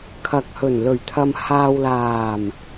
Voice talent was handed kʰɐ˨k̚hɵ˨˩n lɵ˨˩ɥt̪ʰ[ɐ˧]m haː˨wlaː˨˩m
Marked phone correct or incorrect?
incorrect: ɐ˨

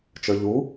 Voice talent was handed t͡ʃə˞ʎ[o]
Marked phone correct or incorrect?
incorrect: u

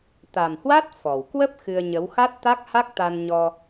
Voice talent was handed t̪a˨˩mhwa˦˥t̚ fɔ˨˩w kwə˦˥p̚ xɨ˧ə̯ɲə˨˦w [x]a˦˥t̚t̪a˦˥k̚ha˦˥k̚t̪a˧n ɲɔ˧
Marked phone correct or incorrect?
correct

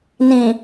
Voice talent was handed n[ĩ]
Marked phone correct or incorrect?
correct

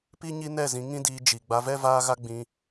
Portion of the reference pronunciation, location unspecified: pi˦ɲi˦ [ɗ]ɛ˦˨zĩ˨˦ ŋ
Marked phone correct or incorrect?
incorrect: n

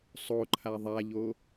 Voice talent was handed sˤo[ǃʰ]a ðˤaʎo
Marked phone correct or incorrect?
correct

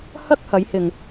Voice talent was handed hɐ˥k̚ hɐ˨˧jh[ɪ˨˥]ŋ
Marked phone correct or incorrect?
incorrect: ɪ˨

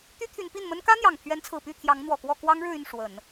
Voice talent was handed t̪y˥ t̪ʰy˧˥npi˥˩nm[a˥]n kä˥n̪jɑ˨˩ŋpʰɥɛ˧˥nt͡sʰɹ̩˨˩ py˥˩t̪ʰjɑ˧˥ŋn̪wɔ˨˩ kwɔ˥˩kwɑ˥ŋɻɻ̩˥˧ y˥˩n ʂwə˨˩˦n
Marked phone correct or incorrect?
incorrect: ə˥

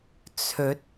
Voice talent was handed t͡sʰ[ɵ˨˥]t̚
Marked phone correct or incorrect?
correct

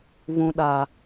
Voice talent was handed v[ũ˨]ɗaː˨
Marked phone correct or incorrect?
correct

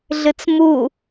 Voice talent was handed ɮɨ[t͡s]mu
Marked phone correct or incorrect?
correct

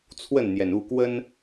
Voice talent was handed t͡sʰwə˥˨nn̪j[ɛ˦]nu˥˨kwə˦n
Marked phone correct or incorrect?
incorrect: ɛ˩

